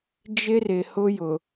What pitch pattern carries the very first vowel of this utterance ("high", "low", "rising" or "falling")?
high